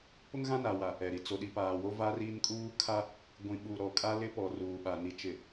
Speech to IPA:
p ʊ˦ ŋ ɣ ã˦ n a˨ w a˨ | ɛ˨ ɾ i˨ t͡s o˨ ɗ i˨ p aː˨ w o˦ v aː˦ r iː˦ n kʼ uː˦ kʰ a˦ | ɡʷ ĩ˨ ɓ u˨ ɾ ɔ˨ kʼ a˦ l ɪ˦ p ɔ˨ r uː˨ ɓ a˨ n i˨ t͡ʃ ɪ˨

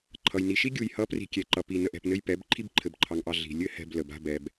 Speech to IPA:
ǃʰ ʌ˨ j n i˨ ʃ i˦ ɡʲ u˨ j h ʌ˨˦ p r i̤˨ kʲ ɛ˨ ǃ ʌ˨ p i˨ n ə˨ ʔ ɛ̤˨ p n ɘ˦ j p ɛ˨˦ b ǃʰ i˧ b ǃʰ ɘ˨ b ǃʰ ɑ˨ ŋ ʔ ɑ˨ ɮ i̤˨ lʲ ɘ˦ h ɛ̤˧ b l ə˨ b a̤˧ b ɛ˨ b

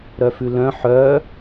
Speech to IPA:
ɾ œ f ʉ l œ̃ ħ œ

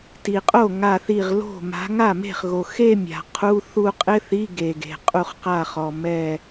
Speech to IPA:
t i˩ qʼ o˥˩ ŋ a˧˩ θ i˧˩ ʁ l o̤˥˩ m a̤˨˦ ŋ a˥˩ m e̤˥˩ χ ɣ o˩ x e˥˧ mʲ a̤˩ qʰ u˧˥˧ θ u˥˧ qʼ ɪ˧˥˧ θ i˧˥˧ ɡ e˩ ɡ e̤˩ qʼ u˧˩ χ q a˧˩ χ ɔ˩ m ɛ˧˩

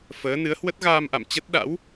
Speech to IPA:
f əː˨˦ n ɨ˨˦ ə̯ h w ə˦˥ t̚ ɣ aː˧ m ʔ a̰˧˨ m t͡ɕ ə˦˥ t̚ ɗ a̰˧˥ w

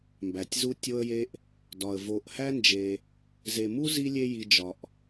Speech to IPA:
m b æ˩ tʲ z u˦ tʲ o˦ ə̯ j e˦ ʔ | d ɒ˩ ə̯ v o˨ ʔ h æ˥ n d͡ʒ e˨ | z e˨ m u˥ z i˦ lʲ e˦ j i˨ d͡ʒ ɒ˩ ʔ

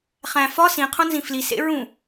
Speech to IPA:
χ æ̃ f ɒ s ĩ qʰ õ n z ĩ f l i s ḛ ɹ ũ

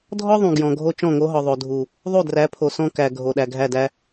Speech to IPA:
dʱ ɔ˦ ðˤ ũ˨ ɡ j ɔ̃˨ ɡʱ o˦ t͡ʃ ɔ̃˦˨ ŋ o˦ ɦ ɔ˨ ðˤ o˨ dʱ u˨ | ðˤ u˦˨ d r æ˨˦ pʰ o˨ s ɔ̃˦ k æ˨ ɡʱ o˨ ɗ æ˨ ɡʱ æ˦˨ d æ˦

